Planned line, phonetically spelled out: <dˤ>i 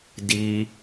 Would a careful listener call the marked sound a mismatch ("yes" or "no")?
yes